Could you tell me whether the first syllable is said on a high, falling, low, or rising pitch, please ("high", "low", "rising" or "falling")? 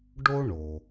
high